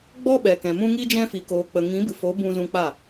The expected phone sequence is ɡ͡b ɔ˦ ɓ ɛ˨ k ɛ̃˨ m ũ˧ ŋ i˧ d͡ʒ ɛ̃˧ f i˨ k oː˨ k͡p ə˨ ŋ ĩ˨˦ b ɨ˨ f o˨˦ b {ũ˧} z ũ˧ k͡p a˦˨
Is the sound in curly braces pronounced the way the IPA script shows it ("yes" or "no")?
yes